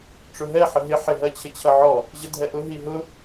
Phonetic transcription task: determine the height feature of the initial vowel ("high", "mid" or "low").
high